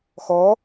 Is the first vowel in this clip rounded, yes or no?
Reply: yes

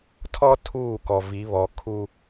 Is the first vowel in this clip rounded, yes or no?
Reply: yes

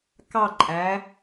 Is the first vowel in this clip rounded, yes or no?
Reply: no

